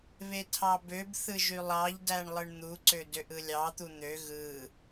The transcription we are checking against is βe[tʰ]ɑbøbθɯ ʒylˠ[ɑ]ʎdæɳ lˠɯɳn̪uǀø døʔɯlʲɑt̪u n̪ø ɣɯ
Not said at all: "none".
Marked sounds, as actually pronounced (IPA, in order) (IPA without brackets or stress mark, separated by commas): tʰ, ɑ